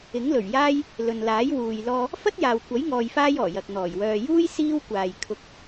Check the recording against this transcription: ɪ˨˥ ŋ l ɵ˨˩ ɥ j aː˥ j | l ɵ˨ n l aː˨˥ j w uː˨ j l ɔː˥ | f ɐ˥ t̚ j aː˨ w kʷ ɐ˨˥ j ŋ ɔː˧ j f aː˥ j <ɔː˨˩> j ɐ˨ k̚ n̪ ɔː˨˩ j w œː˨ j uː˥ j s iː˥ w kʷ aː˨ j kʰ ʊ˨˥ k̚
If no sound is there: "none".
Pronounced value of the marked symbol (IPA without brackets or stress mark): ɔː˨˩